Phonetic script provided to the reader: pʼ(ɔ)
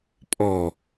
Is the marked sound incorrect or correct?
correct